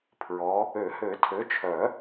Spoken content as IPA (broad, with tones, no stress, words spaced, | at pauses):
pʰɹɔ˨˦ | ø˨˩˦hø˨˩˦ tʰø˨˦t͡ʃʰœ˨˩˦